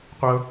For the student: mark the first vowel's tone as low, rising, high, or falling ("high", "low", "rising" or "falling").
high